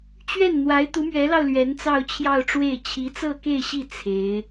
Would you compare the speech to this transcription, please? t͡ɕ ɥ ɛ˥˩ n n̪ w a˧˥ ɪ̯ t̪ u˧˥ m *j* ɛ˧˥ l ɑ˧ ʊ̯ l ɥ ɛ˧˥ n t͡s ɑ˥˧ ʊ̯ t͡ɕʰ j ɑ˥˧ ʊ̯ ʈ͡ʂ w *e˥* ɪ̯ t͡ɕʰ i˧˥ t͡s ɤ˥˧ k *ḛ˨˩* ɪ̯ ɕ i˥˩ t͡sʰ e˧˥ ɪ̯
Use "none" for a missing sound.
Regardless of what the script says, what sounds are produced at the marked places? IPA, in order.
ɥ, e˥˩, e˥˧

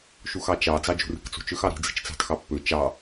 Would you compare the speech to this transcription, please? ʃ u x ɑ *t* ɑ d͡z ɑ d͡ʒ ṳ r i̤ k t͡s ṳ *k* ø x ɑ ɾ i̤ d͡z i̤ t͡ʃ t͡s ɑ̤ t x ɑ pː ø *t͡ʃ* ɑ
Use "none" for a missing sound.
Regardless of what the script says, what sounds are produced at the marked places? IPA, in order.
t͡ʃ, t͡ʃ, t͡ʃ

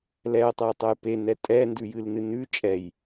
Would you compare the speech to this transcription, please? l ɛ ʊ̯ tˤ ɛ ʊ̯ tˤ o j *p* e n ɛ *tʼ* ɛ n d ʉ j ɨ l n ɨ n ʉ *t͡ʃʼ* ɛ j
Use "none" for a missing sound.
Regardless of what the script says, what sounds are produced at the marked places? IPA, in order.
p, tʼ, t͡ʃʼ

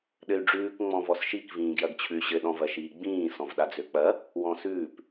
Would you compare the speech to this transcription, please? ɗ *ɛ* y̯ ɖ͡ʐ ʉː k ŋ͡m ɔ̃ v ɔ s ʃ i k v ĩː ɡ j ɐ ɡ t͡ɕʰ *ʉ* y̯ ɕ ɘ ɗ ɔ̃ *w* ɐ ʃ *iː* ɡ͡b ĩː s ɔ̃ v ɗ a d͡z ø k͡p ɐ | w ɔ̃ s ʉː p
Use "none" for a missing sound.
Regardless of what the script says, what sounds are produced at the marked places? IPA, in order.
ɘ, ʉ, v, iː

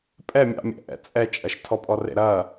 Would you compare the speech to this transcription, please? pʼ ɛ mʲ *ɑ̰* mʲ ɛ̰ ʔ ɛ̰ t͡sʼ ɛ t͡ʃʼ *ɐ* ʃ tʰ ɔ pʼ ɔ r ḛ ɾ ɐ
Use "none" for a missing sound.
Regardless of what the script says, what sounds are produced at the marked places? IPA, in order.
ɑ̰, ɐ

